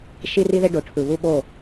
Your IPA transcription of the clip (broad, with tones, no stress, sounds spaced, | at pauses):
ʃ i˦ r i˦ ð e˦ ɖ o˨˦ ʈʰ ɯ˨ β u˦ ɓ o˦˨